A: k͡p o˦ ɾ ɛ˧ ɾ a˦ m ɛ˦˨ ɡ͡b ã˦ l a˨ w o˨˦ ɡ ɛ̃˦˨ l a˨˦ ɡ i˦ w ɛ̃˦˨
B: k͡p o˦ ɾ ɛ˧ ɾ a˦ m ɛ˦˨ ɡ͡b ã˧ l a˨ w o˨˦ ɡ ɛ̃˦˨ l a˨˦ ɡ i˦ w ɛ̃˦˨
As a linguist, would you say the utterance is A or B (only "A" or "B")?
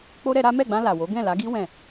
B